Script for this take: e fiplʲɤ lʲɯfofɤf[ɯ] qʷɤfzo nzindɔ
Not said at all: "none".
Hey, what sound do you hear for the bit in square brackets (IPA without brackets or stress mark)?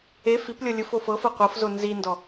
ɤ